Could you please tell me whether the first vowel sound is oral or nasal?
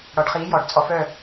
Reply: oral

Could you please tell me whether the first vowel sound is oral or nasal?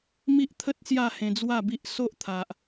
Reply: oral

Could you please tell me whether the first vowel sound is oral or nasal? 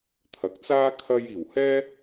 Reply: oral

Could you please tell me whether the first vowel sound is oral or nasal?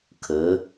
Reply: oral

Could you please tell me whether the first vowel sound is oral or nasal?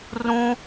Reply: nasal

